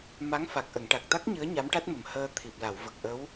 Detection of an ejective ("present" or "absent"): absent